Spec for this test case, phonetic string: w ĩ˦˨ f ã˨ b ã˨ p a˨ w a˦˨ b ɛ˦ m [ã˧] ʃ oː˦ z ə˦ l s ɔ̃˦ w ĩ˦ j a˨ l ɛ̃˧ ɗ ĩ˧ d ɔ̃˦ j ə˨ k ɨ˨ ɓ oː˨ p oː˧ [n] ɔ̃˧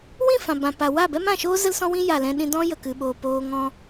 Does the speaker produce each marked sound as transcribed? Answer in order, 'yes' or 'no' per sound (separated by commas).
no, no